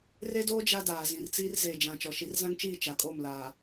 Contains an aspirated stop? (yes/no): no